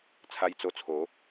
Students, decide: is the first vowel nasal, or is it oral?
oral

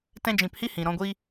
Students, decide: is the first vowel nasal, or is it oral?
nasal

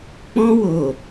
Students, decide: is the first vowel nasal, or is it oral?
nasal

